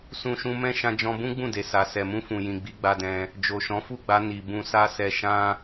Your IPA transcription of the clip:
s ũ˧ ʃ ũ˧ m ɛ̃˦ ʃ ã˧ d͡ʒ ɔ̃˧ b ũ˦ ɡ͡b ũ˦˨ d e˨ s a˨ s ɛ˨ m ũ˧ f ũ˨ j ĩ˨ ɡ͡b i˨˦ ɡ͡b a˧ d ɛ̃˧ | d͡ʒ o˨ ʃ ɔ̃˨˦ f u˦˨ ɡ͡b a˧ n i˨ b ũ˧ s a˦ s ɛ˧ ʃ ã˦

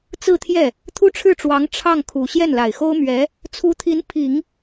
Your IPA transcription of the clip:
t͡s ɹ̩˥˧ t̪ʰ j ɛ˥˩ | t̪ʰ u˥ ʈ͡ʂʰ ɻ̩˥˩ ʈ͡ʂ w ɑ˧˥ ŋ ʈ͡ʂʰ ɑ˥˩ ŋ kʰ u˨˩ ɕ j ɛ˥˩ n l a˨˩ ɪ̯ x o˥ ʊ̯ m ɥ ɛ˧˥ | t͡sʰ u˧˥ t̪ʰ i˧˥ n pʰ i˨˩˦ ŋ

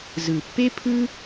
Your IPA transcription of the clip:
z ɯ˨ pː e˦ pʰ ɯ˦

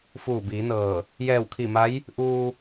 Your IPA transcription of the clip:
f uː˧˩ b iː˩˧ n ɤː˧˩ | j ɛː˧˩ w kʰ i˧˩ m a˧˥ j | ʔ uː˧

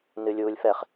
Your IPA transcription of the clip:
n ɨ lʲ uː lʲ f ɛ χ

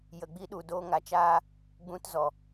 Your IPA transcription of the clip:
j ə˨ ɡ͡b i˧ ɗ u˨ d oː˧ ŋ a˨ t͡ʃ aː˧ | ɡ͡b ũ˧ t z ɔ˨

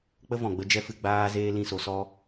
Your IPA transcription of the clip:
k͡p ə˦ v ɔ̃˨ ɡ͡b ə˦ d͡ʒ ɛ˦ f ɨ˧ ɡ͡b aː˦ z eː˦ l ĩ˦˨ s o˧ s ɔ˦

